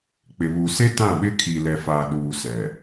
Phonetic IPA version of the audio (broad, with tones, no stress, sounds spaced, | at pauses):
k͡p ɪ˨ β u˨ s e˦ t ã˦˨ ɓ ɪ˦ kʰ i˨ l ɛ˨ f aː˨ ɗ uː˨ s ɛ˨